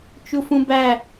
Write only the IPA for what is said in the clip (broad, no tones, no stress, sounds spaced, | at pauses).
t͡ʃ u f ũ b æ